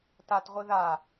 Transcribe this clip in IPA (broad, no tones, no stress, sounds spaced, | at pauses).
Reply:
t a t ʁʷ i ð a